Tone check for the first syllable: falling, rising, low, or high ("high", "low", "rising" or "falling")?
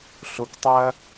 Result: low